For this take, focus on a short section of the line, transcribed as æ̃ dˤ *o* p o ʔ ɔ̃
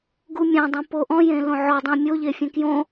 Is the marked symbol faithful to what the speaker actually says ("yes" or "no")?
no